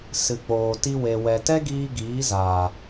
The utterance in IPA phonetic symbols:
s ɨ˨ k͡p oː˨ t i˧ w e˨ w ɛ˨ t ɛ˦ ɡ iː˧ ɡ iː˨˦ z aː˨

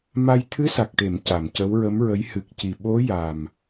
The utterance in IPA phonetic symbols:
m a˧ j t̪ʰ ɨ˧˥ s a˨˩ k̚ ʈ e˨˩˨ m c a˨˩˨ m c ə˧˥ w ɹ ə˧˥ m ɹ ə˧˥ j h ɨ˨˩ k̚ c i˨˩ ɓ o˧˥ j a˨˩ m

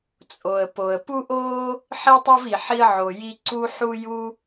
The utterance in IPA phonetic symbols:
t͡sʼ o˩ ə̯ p o˩ ə̯ p u˥ ʔ oː˥ | ħ i˥ tˤ o˥ v i˩ ħ i˥ ə̯ ʕ o˩ j i˥ ǀ u˥ ħ u˥ j u˥

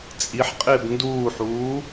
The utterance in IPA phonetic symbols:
t͡sʼ i ħ qʼ ɪː b n d uː ħ uː

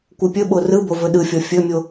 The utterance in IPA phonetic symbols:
kʷ ɯ pʲ ɵ ɓ o r ɯ b o v ɵ ɗ ɯ fʲ ɔ fʲ ɵ mʲ o

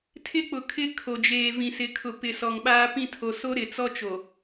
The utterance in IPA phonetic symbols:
tʰ ɪ˦ k͡p ʊ˨ kʰ ɪ˦ kʰ o˨ d͡ʒ eː˨ v ĩ˨ s ɪ˨ kʰ ʊ˨ p ɪ˨ s ɔ˨ ŋ ɓ aː˦ p ĩ˦ tʰ o˨ s o˦ ɾ ɪ˨ t͡s ɔ˦ t͡ʃ o˨

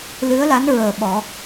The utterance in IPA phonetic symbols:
l ɨ˧˥ ə̯ l a˧˥ n ɹ əː˨˩ ɓ ɔ˨˩˦

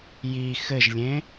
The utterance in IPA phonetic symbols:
j i x ɘ ʒ lʲ ẽ

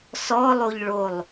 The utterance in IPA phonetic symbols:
s ɔ lˠ o ʎ ɭ o lˠ

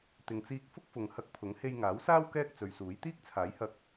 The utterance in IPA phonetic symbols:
t̪ ɪ˨ ŋ t͡s iː˧ k̚ f ʊ˥ k̚ f ʊ˨ ŋ h ɐ˧ k̚ pʰ ʊ˨˥ ŋ h e˧ j ŋ aː˨˥ w s aː˥ w k ɛː˥ k̚ t͡s ɵ˨ ɥ s uː˨˥ j t̪ iː˥ k̚ t͡sʰ aː˨˥ j h ɐ˧ k̚

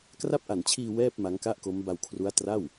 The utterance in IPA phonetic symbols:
k r a˦˥ p̚ ʔ a˨˩ n t͡ɕʰ iː˧ w ɛː˥˩ p̚ m a˦˥ ŋ k a˥˩ ʔ k o˦˥ m b a˧ w kʰ r u˦˥ a̯ t r a˥˩ w

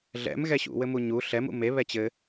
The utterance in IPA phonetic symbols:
ɮ ɛ̰ m ɣ ɛ ɕ ṵ w ɘ m u ɲ u ɬ ɛ m ṵ m e β ɛ t͡ɕ ɘ

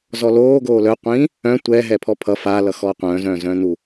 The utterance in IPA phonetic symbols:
z ɔ l oː ɡ oː l œ qʷ ĩː | œ̃ tʷ ɛ ɦ ɛ pʰ ɔ pʰ ʌ f a l ʌ x ɔː qʷ œ̃ː z œ̃ː z œ̃ː n u

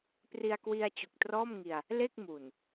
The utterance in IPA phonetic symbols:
p r i˧ a̯ k w i˧ a̯ t͡ɕ u˨˩ k̚ t r ɔː˥˩ m ŋ i˧ a̯ | l e˥˩ k̚ m u˨˩ n

